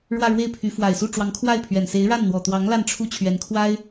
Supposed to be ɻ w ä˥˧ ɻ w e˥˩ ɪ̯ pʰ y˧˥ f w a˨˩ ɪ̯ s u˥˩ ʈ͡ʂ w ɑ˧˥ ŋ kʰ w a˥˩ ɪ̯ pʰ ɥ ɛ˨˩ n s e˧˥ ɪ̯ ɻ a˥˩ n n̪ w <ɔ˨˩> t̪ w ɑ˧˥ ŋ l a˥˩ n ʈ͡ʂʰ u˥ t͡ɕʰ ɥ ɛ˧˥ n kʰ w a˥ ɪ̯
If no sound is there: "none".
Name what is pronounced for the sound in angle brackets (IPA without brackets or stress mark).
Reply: ɔ˨˩